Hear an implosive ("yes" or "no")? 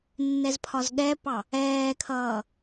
yes